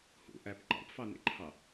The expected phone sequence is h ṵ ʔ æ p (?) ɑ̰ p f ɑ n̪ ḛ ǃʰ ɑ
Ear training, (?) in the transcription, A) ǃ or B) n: A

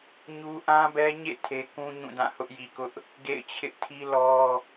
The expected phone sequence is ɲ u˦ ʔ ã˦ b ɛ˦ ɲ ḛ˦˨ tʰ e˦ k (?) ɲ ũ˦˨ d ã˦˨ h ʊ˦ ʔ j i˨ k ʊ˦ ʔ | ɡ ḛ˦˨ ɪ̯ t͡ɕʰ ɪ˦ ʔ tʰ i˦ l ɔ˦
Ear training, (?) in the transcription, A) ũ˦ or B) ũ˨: A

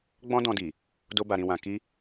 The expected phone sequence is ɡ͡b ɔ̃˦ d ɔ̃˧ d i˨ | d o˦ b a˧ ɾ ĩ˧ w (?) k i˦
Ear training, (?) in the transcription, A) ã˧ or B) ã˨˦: A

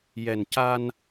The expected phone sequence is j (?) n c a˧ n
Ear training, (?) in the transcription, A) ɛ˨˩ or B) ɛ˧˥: A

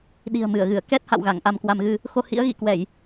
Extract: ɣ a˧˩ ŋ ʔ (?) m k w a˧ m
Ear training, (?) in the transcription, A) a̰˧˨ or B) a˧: B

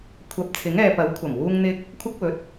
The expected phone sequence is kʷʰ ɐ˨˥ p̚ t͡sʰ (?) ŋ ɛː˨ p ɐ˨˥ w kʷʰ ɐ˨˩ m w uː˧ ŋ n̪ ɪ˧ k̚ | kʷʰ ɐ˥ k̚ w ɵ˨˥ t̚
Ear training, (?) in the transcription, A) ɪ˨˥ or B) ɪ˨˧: A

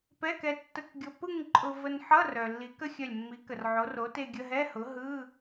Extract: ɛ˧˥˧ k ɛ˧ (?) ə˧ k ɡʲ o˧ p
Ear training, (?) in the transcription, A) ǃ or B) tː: B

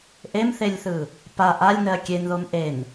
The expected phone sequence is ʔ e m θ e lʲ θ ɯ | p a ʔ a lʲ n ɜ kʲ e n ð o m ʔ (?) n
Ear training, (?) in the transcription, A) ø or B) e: B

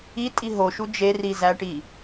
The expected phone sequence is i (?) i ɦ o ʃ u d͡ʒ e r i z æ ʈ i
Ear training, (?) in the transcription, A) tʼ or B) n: A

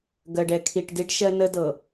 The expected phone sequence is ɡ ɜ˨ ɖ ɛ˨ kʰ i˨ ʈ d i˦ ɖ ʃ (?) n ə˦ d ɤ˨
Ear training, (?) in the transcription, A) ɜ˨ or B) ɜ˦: B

